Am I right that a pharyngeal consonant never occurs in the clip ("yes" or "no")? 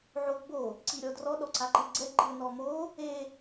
no